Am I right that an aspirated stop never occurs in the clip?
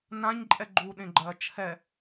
no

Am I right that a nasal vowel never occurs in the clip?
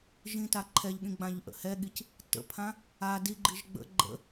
no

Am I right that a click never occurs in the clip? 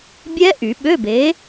yes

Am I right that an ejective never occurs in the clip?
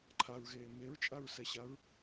no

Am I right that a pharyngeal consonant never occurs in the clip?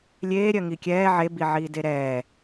no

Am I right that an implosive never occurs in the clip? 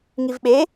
no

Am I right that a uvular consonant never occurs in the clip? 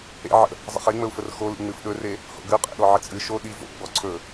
no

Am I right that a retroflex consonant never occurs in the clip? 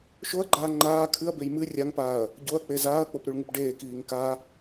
no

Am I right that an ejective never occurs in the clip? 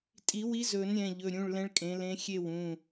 no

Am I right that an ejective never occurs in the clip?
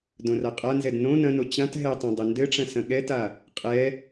no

